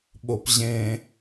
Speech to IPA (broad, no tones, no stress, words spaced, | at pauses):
ɓopʑẽ